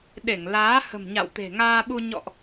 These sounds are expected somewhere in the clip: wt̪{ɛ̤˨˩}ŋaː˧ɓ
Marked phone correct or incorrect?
incorrect